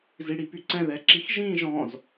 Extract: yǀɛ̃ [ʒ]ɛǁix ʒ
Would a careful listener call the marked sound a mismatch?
yes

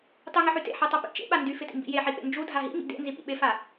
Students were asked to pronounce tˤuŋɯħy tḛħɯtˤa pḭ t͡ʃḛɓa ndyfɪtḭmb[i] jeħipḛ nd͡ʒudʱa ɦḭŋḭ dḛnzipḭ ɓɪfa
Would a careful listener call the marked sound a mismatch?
yes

